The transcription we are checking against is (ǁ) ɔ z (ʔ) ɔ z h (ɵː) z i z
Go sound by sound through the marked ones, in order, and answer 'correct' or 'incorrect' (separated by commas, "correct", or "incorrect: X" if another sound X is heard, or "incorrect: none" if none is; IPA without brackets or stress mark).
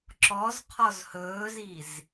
correct, incorrect: qʰ, correct